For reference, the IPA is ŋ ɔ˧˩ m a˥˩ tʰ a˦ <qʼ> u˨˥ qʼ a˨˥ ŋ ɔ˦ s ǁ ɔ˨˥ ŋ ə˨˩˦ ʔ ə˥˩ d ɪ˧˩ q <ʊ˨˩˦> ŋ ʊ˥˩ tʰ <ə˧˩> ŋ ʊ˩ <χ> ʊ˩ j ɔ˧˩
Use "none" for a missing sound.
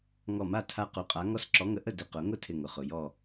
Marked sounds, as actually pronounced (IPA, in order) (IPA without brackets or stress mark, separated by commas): q, ʊ˨˩˦, ɪ˧˩, χ